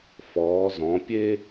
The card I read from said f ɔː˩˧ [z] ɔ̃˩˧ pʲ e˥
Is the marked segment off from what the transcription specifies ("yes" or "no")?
no